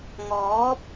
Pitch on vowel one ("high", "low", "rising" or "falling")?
rising